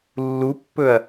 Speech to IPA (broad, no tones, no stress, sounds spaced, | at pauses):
lː u pː ɵ ɐ̯